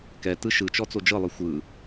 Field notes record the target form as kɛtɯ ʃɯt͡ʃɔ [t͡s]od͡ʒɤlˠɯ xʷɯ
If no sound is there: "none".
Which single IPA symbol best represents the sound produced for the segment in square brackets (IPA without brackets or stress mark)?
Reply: t͡s